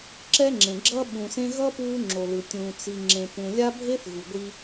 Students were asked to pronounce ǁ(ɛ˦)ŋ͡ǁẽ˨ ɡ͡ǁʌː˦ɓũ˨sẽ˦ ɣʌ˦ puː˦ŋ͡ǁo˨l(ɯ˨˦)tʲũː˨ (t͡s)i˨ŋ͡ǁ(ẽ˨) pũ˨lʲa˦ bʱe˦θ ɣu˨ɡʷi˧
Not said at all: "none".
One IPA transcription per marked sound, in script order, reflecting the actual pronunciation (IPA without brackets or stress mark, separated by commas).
ɛ˦, ɯ˨, t͡s, ẽ˨